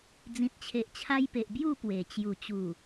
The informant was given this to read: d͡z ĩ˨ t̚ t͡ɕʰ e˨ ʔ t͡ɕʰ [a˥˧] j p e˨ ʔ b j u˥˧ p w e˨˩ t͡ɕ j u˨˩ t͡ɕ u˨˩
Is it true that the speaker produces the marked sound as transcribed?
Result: no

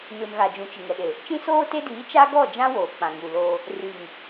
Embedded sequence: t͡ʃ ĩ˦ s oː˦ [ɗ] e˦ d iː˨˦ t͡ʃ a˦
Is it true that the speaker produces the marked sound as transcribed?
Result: no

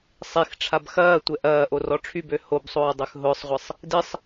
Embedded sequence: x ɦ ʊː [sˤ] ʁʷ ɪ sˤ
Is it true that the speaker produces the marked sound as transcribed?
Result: yes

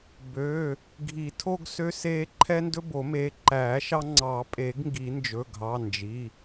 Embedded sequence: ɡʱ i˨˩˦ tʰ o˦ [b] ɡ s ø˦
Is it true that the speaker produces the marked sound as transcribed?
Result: no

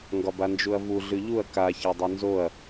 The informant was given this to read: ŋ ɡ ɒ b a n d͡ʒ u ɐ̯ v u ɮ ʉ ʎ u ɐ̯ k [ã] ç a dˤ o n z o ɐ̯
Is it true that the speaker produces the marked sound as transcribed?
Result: no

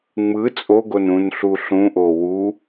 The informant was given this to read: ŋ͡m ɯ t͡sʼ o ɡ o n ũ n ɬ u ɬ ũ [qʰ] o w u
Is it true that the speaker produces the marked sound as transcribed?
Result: no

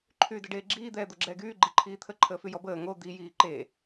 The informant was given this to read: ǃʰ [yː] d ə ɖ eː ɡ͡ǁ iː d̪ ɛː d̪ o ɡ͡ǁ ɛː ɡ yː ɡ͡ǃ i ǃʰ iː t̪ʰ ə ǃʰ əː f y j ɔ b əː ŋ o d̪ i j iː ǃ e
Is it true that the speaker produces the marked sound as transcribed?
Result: yes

